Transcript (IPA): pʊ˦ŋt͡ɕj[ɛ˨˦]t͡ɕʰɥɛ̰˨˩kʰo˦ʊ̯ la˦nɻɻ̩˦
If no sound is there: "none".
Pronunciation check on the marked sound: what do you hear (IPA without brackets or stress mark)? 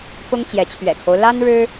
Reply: ɛ˨˦